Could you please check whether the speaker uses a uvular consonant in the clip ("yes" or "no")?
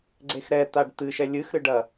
no